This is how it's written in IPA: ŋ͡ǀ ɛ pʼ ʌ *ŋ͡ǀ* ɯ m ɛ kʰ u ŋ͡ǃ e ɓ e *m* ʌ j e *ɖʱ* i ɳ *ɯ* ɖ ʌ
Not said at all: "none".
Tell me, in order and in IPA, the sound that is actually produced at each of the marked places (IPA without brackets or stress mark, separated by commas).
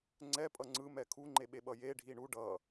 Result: ŋ͡ǀ, ɓ, ɖʱ, u